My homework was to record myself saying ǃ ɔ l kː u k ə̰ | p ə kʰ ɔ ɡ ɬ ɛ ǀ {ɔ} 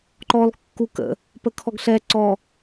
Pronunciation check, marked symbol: correct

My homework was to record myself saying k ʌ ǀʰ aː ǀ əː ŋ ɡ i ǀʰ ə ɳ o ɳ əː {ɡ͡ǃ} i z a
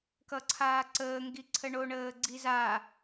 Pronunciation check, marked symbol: incorrect: ɡ͡ǀ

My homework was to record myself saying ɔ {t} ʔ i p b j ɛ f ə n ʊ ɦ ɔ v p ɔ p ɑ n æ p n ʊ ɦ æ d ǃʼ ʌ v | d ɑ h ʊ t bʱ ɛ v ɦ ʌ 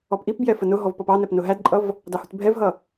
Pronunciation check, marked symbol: incorrect: p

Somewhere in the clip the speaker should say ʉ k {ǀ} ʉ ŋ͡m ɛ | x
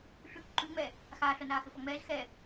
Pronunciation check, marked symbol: incorrect: ǃ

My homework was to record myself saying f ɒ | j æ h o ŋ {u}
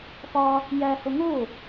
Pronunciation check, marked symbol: incorrect: o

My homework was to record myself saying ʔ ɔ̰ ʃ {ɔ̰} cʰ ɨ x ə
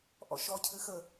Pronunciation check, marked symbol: incorrect: ɔ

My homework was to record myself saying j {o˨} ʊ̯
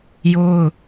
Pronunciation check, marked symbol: incorrect: o˦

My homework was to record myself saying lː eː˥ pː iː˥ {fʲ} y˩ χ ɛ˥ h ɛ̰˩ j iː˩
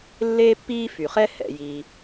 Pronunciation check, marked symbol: incorrect: f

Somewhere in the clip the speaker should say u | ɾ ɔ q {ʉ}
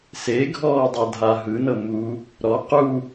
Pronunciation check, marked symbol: incorrect: u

